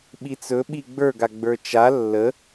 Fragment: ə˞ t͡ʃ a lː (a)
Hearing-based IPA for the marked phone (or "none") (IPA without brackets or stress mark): ə